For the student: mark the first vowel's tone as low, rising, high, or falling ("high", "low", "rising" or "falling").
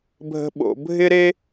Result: high